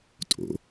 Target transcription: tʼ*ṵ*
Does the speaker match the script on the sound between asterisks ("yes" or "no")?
no